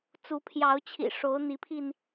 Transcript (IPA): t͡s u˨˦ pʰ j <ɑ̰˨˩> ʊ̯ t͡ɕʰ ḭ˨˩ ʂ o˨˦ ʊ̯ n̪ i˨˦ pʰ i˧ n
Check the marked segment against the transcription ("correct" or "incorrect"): incorrect